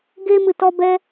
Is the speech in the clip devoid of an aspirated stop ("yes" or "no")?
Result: yes